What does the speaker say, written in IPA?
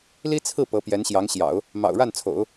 li˥ t͡sʰɹ̩˥˩ pɤ˧˥pjɛ˧˥nɕjɑ˧˥ŋɕjɑ̰˨˩˦ʊ̯ | mɑ̰˨˩ʊ̯ ɻa˥˩nt͡sʰo̰˨˩˦ʊ̯

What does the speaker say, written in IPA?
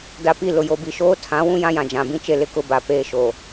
da˨pi˦˨ lʊ˨jo˨bi˨ ʃoː˦tʰã˨˦ wũ˦jã˦jã˨ d͡ʒã˨bĩ˦ t͡ʃe˦lɪ˦kʊ˦ ba˨peː˦ ʃo˨

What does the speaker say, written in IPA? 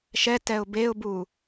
ʃɛ tɛʊ̯beʊ̯bu

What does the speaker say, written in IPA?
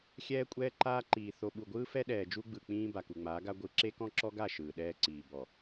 xʲɛː˦kʷʼɛː˦ǃaː˦ǃiː˨ θo˨ɓu˨ɡʷɯː˦ fɛ˦ɗɛː˨d͡ʒu˦ɡ͡bɯ˨ k͡pĩː˦ ba˨ku˨ŋ͡maː˨˦ɡa˦ ɡʷɯ˨ ǁe˦kɔ̃˦ǁɔ˦ɡa˦˨ ʃɯː˨ɗɛː˦ǀiː˨ bɔ˨

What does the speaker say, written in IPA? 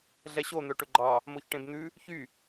ɮɛɕon̪œ ʈɵɡ͡ǃɑ | moçʈẽbn̪ʉ | çy

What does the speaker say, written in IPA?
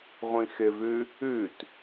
ʁʷĩxɪvʉ | ʉt

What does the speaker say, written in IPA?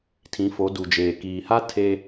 tʰĩ˨˦fo˨˦du˨d͡ʒeː˨ kiː˨ha˦ tʰe˦

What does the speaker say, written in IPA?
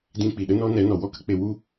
dĩ˧k͡pi˨ ɗə˦nɔ˦ nɛ˨˦nɔ˨wɔ˦ kə˦k͡pe˧wu˦

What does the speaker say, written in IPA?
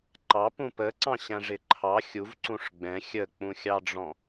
ǃɑpũ pəǀɑ̃ɕæ̃ ʐɪǃʰɑ xʲuv ǀũʂɡ͡bɛ̃ xʲək͡pũxʲɑɖ͡ʐɔ̃

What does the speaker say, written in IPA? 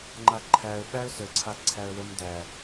ŋ͡ǃaǃʰæə̯ ɓæə̯səǀʰa ǀʰæə̯wəm dæ

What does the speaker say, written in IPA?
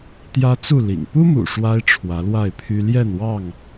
t̪jä˦t͡su˥˨ lḭ˨˩ŋ pu˦mṵ˨˩ ʂwa˦ɪ̯ ʈ͡ʂʰwä˨˦lwa˥˨ɪ̯pʰy˦ ljɛ˥˨nwɑ˥˨ŋ

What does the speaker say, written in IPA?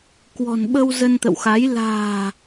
kwɔ̤˨˩nɓə˧w zə˧nt̪ə̰˧˨wxa˨˦j la̤ː˨˩

